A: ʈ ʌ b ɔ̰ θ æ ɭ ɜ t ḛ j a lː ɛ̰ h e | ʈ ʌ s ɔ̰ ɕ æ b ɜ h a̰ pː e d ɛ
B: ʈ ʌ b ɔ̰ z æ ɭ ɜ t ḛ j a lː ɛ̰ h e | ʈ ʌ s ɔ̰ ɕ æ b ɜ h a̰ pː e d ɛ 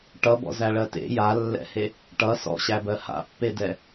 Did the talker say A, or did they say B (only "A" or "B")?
B